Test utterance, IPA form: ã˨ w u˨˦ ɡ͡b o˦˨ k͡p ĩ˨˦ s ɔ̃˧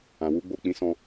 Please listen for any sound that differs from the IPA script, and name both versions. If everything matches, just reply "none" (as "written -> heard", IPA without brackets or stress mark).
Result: none